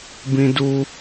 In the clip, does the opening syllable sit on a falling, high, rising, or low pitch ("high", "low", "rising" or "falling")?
high